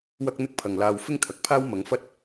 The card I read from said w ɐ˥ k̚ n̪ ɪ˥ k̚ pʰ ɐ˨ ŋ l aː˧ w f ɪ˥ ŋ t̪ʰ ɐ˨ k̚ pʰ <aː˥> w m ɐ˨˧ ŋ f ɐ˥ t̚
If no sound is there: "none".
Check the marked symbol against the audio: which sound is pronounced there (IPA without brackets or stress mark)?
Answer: aː˥